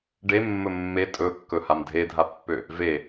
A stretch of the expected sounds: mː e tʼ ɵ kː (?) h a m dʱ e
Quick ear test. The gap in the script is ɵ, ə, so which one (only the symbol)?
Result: ɵ